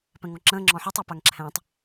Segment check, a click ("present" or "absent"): present